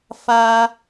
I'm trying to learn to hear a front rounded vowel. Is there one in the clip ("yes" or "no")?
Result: no